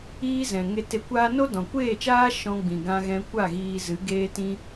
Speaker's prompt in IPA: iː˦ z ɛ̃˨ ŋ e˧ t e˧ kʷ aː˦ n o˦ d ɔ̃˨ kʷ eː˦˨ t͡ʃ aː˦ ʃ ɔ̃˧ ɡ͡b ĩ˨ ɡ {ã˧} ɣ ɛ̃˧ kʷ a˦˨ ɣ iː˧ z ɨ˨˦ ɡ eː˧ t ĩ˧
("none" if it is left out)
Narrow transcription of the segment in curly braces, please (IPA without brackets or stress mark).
ã˧